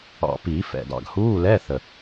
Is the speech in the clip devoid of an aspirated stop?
yes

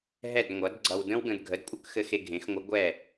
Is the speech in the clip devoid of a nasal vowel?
no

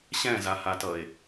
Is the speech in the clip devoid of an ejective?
yes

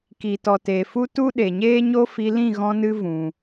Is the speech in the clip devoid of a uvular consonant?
yes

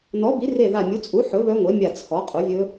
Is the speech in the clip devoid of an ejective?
no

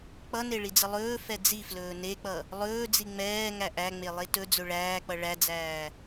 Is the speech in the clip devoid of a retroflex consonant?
no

